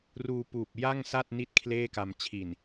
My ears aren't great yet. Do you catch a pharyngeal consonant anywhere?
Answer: no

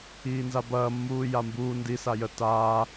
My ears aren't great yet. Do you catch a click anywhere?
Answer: no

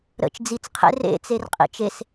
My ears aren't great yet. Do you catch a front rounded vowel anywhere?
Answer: no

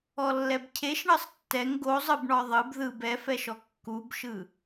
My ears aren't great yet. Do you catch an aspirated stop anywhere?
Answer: yes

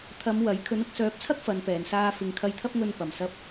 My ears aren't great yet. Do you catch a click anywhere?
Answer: no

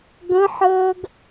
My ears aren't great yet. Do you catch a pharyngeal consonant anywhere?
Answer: yes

